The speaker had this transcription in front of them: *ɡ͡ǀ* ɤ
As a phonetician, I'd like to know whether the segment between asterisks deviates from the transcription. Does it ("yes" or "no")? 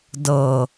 yes